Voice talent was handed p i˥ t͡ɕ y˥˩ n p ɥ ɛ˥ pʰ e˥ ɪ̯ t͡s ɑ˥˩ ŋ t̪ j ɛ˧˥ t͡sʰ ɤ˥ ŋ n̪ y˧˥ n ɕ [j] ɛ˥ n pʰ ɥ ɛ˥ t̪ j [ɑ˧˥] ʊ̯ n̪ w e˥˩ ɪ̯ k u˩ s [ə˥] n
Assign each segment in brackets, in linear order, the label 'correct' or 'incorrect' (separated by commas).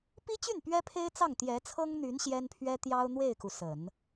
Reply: correct, incorrect, incorrect